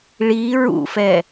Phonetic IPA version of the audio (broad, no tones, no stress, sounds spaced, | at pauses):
ɭ i ɹ ṵ f ɛ